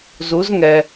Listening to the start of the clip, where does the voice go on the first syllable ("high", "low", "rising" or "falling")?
rising